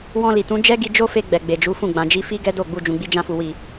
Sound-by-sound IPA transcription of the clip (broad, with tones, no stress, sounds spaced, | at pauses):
w ɔ̃˧ l i˨ t ũ˨˦ d͡ʒ ɛ˦ ɡ i˧ d͡ʒ o˦ f e˧ ɡ͡b ɛ˨ ɡ͡b e˨ d͡ʒ u˨˦ f ũ˦˨ ɡ͡b ã˨ d͡ʒ i˨˦ f i˦ ɡ ɛ˦ d o˦˨ ɡ͡b u˧ d͡ʒ ũ˨ ɡ͡b i˧ d͡ʒ ã˧ f u˨ w i˨